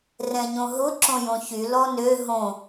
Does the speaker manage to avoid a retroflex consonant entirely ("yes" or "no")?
yes